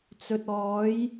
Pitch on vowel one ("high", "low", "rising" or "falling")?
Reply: low